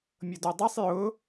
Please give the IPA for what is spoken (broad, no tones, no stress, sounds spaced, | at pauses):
mʲ ɤ d o dˤ a sˤ j ʊ